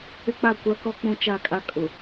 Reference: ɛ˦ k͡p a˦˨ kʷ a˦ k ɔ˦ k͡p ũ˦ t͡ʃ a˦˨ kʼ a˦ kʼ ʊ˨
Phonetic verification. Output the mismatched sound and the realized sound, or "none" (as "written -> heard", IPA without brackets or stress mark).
ɛ˦ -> ɪ˦